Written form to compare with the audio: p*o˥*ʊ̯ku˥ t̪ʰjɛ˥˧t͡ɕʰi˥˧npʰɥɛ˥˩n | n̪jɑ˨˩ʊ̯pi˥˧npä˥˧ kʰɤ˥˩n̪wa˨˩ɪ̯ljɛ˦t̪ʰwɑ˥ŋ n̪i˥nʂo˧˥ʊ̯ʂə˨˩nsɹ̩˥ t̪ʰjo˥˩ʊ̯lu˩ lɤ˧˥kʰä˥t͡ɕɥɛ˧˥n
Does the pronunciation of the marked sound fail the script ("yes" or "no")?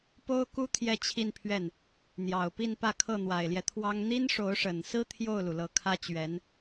no